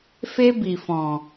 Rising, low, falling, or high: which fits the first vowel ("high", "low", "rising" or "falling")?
high